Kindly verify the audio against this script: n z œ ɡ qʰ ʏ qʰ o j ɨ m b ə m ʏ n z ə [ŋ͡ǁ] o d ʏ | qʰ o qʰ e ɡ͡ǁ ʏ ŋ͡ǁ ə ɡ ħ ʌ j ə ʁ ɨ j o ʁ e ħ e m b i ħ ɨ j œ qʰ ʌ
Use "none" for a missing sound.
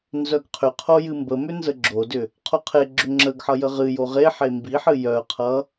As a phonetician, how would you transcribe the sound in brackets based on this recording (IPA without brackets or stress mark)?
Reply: ɡ͡ǁ